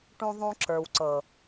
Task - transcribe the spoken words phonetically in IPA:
ʈ ũ˦ ðˤ ũ˦ ǁ ə˞˨ w ǀ ɤ˨

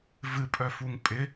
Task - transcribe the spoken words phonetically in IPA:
v ɨ pʼ œ f u ŋ pʼ ɪ

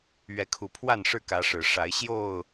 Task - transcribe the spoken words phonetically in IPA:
ɥ ɛ˨˦ kʰ u˨˩ pʰ w a˥˨ n ʂ ɻ̩˥˨ k ä˨˦ ʂ ɻ̩˨˩ ʂ a˨˦ ɪ̯ ɕ j o˥˨ ʊ̯

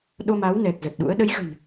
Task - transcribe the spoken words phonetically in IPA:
ɗ o˧ m a˨˦ w n ɛ˨˩ k̚ z ə˨˩ t̚ ɗ ṵ˧˥ ə̯ ɗ ə˨˦ j ɣ ə̤˨˩ n

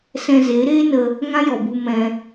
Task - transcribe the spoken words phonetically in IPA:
s ɛ̃˧ z e˨˦ ɾ eː˦ n ə˧ | ŋ ã˦ j ɔ˨ b u˧ m ɛ̃˧

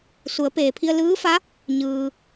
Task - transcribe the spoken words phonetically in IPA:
s u˩˧ ə̯ p eː˩ pʰ i˧ ə̯ l ɯː˧˥ f a˧˥ | ɲ ɯː˩

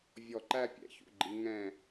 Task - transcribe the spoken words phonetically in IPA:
vʲ ɔ˧˩ ǃ æ˥˧ pʲ ɛ̰˩˧ ç ṵ˧˩ ɡ͡ǃ i˩˧ ŋ ɛ̃˧˩

